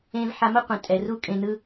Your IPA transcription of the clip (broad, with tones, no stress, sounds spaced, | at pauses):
ẽ˧ v ħ a˧ m ʌ˦ qʷ ẽ˨ tʼ ɛ˨ r u˦ kʼ ẽ˧ n ɯ˦